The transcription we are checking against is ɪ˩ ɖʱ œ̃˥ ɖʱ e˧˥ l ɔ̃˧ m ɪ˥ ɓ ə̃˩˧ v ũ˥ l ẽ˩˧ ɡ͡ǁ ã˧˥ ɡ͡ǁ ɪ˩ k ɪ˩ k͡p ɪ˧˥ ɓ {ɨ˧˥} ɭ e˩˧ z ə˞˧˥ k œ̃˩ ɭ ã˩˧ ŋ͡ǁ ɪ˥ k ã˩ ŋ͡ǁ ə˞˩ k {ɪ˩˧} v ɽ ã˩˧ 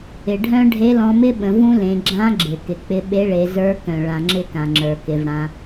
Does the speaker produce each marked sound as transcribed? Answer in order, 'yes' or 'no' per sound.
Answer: no, yes

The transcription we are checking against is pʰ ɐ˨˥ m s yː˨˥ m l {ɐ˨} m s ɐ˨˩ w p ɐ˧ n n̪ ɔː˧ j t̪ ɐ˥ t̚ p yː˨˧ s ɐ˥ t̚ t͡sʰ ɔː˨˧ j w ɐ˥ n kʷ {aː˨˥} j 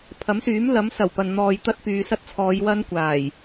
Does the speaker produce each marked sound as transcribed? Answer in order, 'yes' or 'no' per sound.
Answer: no, no

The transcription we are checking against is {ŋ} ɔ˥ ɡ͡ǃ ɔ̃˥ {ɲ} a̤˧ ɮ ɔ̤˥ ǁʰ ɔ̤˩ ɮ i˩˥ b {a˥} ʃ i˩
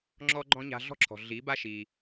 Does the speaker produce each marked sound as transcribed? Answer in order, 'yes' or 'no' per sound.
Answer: no, yes, yes

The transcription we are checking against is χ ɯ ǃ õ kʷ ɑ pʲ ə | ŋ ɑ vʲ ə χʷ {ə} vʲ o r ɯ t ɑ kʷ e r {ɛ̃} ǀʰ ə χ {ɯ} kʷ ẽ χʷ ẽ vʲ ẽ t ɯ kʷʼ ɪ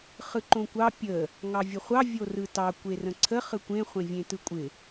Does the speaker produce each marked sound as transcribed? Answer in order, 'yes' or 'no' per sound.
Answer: no, no, yes

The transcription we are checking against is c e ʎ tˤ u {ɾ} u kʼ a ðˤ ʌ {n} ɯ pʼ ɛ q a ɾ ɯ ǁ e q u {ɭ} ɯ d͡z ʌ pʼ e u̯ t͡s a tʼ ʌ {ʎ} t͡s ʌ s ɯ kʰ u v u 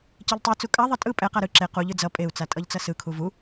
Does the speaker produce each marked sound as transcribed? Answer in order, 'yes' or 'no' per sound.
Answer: no, no, no, yes

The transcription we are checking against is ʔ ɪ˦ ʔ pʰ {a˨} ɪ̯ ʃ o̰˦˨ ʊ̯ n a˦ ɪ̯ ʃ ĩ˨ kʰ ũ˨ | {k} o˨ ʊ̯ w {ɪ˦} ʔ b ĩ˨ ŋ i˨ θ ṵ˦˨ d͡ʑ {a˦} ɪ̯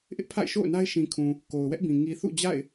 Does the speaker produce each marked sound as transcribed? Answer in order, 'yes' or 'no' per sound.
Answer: no, yes, no, no

